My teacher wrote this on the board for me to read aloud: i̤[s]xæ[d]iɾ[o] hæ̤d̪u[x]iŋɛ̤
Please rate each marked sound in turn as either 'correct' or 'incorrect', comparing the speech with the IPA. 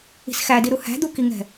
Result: correct, correct, incorrect: u, incorrect: k

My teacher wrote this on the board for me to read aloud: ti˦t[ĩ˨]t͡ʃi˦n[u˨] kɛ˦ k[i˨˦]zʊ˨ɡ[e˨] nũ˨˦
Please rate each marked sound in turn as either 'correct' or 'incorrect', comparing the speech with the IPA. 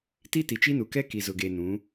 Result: incorrect: i˨, correct, incorrect: i˨, correct

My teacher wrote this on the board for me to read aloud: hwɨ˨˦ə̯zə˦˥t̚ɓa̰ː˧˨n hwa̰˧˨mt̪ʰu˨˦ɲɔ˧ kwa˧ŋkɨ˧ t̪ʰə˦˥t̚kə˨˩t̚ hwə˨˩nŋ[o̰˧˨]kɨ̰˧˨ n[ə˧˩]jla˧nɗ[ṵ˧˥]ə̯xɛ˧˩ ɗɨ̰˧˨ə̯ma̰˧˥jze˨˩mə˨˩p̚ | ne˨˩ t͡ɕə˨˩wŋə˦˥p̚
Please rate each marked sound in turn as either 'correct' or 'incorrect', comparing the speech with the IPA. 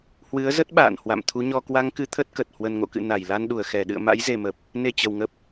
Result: correct, incorrect: a˧˩, incorrect: u˧˩

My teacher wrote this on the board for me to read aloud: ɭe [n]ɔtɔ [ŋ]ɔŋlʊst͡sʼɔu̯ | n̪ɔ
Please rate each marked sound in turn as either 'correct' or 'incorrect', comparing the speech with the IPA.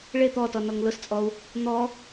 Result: incorrect: t̪, incorrect: n

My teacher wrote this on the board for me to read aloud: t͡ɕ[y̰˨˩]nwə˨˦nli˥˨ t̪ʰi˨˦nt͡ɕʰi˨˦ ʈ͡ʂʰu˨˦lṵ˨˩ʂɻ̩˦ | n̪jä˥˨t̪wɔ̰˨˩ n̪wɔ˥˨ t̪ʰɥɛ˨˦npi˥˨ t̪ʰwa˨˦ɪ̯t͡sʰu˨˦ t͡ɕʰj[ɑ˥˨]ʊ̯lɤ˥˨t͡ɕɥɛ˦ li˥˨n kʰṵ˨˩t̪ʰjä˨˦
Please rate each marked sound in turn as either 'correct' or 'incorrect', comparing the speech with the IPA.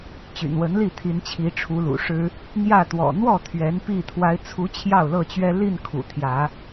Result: correct, correct

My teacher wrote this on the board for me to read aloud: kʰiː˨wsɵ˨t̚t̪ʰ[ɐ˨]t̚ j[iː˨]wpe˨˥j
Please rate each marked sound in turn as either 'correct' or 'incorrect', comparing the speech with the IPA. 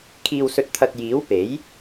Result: correct, incorrect: iː˨˥

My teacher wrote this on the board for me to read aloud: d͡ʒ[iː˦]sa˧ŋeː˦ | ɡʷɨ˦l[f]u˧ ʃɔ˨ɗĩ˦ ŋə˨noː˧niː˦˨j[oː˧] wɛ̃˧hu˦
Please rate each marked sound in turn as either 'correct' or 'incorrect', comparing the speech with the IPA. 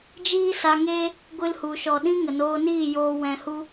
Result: correct, incorrect: h, correct

